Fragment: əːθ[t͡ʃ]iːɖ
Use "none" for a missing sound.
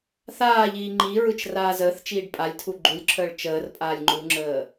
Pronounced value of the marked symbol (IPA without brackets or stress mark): t͡ʃ